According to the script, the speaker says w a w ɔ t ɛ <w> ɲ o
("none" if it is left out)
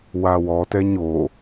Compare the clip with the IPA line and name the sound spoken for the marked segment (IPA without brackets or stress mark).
none